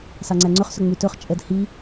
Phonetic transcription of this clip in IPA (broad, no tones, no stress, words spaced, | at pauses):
sɑŋ͡ǀæŋ͡ǀɵχsɵ ŋ͡mytɵχt͡ʃʼɛd hi